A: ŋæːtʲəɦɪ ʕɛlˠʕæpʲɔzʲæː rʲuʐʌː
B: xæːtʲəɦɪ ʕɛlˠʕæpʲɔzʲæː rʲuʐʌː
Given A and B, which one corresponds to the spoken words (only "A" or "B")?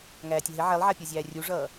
A